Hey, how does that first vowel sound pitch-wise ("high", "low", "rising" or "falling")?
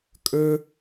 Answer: high